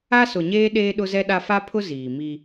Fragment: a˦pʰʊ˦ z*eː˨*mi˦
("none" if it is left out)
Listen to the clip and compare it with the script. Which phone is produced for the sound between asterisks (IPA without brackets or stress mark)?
iː˨